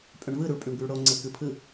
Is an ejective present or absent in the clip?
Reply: present